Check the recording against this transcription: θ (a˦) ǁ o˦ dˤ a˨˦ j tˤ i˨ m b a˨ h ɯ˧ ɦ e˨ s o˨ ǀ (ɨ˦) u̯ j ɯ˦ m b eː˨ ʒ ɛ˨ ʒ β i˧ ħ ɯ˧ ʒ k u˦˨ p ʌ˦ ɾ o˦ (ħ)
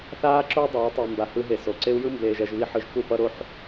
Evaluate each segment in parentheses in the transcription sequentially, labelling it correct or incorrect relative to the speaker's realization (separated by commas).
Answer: incorrect, incorrect, correct